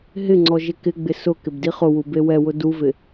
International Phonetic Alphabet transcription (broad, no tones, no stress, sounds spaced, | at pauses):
ɦ ɪ ŋ͡ǀ ɔ ʒ ɪ k ɪ ɡ͡b ɪ s ʊ k ɪ b d i χ ʊ w u b e w ɛ w ʊ d u v ɪ